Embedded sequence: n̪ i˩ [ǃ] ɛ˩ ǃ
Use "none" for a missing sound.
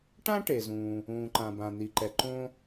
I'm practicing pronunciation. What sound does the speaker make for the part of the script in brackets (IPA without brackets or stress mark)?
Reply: ǃ